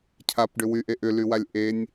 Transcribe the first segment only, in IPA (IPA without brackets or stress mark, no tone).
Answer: cʰ